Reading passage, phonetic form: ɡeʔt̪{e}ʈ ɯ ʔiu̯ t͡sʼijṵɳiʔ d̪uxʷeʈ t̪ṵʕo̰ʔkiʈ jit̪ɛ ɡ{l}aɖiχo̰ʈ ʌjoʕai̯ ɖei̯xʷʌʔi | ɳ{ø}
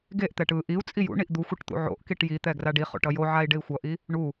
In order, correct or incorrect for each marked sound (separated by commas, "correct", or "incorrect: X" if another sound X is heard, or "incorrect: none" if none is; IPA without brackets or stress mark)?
incorrect: ɛ, incorrect: r, incorrect: u